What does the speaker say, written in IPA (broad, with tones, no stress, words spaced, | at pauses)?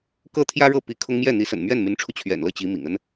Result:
kɤ˥˩t̪ʰjä˥ɻɤ˥˩pi˧˥ kʰʊ˥ŋ mjɛ˥˩n̪i˧˥ sə̰˨˩nmɥɛ˥˩nmy˧˥nʈ͡ʂʰu˧ t͡ɕʰɥɛ̰˨˩nlɤ˥˩ t͡ɕi˧˥mḭ˨˩ŋ ə˥n